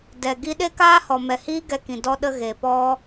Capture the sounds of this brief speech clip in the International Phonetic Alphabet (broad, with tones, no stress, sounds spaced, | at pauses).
d ɛ˨ ɡ i˦ ɗ e˦ k aː˦ h ɔ˨ m ɛ˨ h iː˦ ɡ ɛ˧ k ĩ˨ d ɔ˧ ɗ ə˧ ɣ e˨ p ɔ˦